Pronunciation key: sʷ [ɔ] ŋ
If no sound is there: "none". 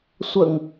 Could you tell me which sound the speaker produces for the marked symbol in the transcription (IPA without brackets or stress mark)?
ə